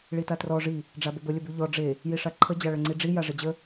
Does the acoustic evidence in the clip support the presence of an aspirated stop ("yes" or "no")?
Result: yes